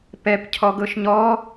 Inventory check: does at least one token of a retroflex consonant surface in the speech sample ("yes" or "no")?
no